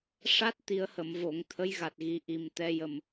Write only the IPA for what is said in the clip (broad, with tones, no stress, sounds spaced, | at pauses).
ʂ a˦˥ t̚ t̪ i˨˩˦ ə̯ h ə˨˩˨ m v o˨˩˨ ŋ t̪ʰ ə˧˥ j ɣ a˨˩ t̚ ɣ i˨˩˦ ʔ i˨˩ m t̪ ɛ˧ j ə˨˩ m